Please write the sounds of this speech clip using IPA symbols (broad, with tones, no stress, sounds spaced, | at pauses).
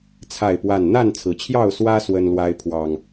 t͡sʰ a˥˨ ɪ̯ p w a˥˨ n n̪ a˥˨ n t͡sʰ ɹ̩˩ t͡ɕʰ j ɑ˥˨ ʊ̯ s w ä˦ s w ə˦ n l w a˦ ɪ̯ pʰ w ɑ˨˩ ŋ